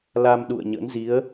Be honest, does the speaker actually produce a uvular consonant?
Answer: no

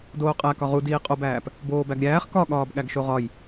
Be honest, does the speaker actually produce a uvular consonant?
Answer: yes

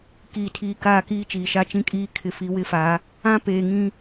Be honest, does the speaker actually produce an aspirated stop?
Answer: yes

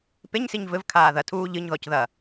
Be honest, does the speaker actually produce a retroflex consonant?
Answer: no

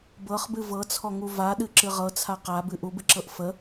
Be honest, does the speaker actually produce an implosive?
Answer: yes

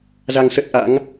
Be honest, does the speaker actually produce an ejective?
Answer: no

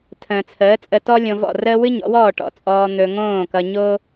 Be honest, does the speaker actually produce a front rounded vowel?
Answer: no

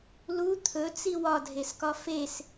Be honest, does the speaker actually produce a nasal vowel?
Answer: no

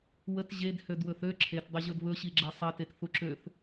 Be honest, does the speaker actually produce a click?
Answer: yes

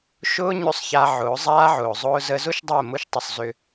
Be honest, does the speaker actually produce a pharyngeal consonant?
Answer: yes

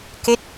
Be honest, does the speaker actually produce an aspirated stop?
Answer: no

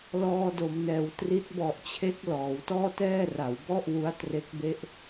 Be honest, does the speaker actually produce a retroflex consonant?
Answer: no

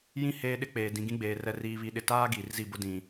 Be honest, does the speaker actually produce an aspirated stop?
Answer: no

